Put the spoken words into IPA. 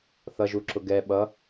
θ ʌ ʒ u ǁ ʊ ɡ ɛ ɓ ʌ

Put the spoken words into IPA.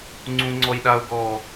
ŋ͡ǀ ũ ŋ͡ǀ ɔ j ɗ a o̯ ɡ ɔ

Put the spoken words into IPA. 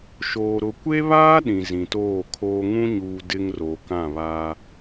ʃ oː˨ ɾ ʊ˨ kʷ e˦ β aː˦ ɗ ĩ˨ z ĩ˨ t oː˦˨ kʰ oː˦ ŋ ũ˦ ɲ uː˨ d ɪ˦ ŋ r o˨ k ã˦˨ β a˦

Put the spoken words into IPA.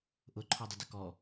ʔ ʊ ǃʰ ɔ dˤ ʊ d ə k ɔ

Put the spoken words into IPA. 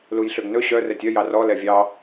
l u j ɬ ø ɡ n ɵ ɕ œ r ɛ tʲ œ j ɑ r ɔ l ɛ vʲ ɑ

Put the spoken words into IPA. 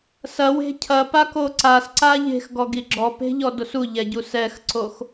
s ɐ w e̤ cʰ ɐ p a k o ǀ a s ǀ a ʎ e̤ x ɡ ɔ ɡ i ɡ͡ǁ ɔ p e̤ ʎ ɔ d o s u ʎ ɛ ɟ u s ɛ x ǀ o x

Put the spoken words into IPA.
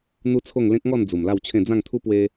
n̪ u˦ t͡sʰ o˥˧ ŋ l ẽ˦ k̚ ŋ ɔ˥˧ n d͡z u˨˩ m l a˥˧ w t͡ɕʰ ẽ˥˧ d͡z ã˥˧ ŋ t̪ʰ u˦ p w e˧

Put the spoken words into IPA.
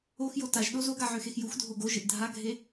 o x j o t a ʒ ɗ o z o ɡ a ʕ ø x e x j u x dʱ o ɡ o ʒ ɘ ʔ dʱ a ɡʱ e

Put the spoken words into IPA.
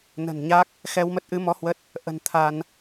n ə̤˨˩ n ɲ a˦˥ k̚ | x ɛ˧ w m ə˦˥ t̚ ʔ ɨ˨˦ m ɔ˨˦ h w ə˦˥ t̚ | ʔ ə̤˨˩ n t̪ʰ a˧ n

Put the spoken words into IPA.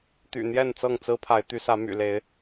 t̪ y̰˨˩ n̪ j ɛ˥˨ n t͡s ɤ˥˨ ŋ t͡s ɹ̩˦ pʰ a˨˦ ɪ̯ t̪ y˨˦ s ä˨˦ m y̰˨˩ l e˨˦ ɪ̯

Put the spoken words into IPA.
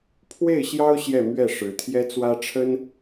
pʰ w e˥˩ ɪ̯ ɕ j ɑ˥ ʊ̯ ɕ j ɛ˥˧ m ɥ ɛ˥˩ ʂ ɻ̩˧˥ t̪ʰ j ɛ˥ t͡s w ä˥ ʈ͡ʂʰ ə˥ n

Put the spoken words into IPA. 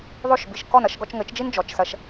ðˤ o˥˩ ʃ b i˩ ʃ k ɔ˥˩ n ɐ˧ ʃ ɡ ɔ˧ t͡ʃ ŋ ɘ˩˥ t͡ʃ d͡ʒ i˥ n d͡ʒ ɔ˩˥ t͡ʃ s ɐ˧ ʃ

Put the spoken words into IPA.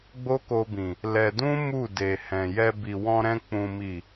ɡ͡b o˦ k o˧ b ĩ˨ | l ɛ˧ d ũ˦ m u˦˨ d e˨ h ɛ̃˨ j ɛ˧ b i˨ w ɔ̃˧ ɾ ɛ̃˧ k͡p ũ˨ m i˨

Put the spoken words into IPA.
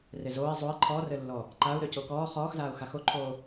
r e z oː i̯ zˤ o i̯ ǃʰ ɔ r ɘ lː ɔ | ǃ a u̯ ɾ ø c o k ɔː χ ɔː x z aː u̯ x a x o ǃʰ oː

